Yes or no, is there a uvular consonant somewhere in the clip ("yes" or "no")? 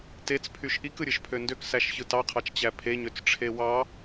yes